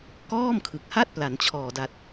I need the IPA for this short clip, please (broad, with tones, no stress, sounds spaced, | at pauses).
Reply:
k ɔː˥˩ m kʰ ɯ˨˩ k̚ h a˥˩ t̚ p l a˩˦ n t͡ɕʰ ɔː˨˩ d a˨˩ t̚